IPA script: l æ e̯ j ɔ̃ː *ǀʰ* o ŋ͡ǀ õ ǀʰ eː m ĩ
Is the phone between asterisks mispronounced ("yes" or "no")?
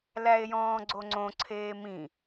yes